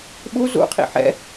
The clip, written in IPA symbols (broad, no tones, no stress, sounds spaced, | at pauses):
ɓ u z ṵ qʰ ḭ ħ ɛ̰